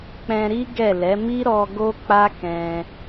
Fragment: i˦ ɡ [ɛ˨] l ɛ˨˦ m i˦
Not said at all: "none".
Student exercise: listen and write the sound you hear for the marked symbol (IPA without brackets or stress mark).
ɛ˦˨